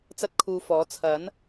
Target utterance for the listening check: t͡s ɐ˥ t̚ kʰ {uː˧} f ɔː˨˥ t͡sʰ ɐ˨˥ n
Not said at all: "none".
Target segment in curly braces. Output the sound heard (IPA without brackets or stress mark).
uː˧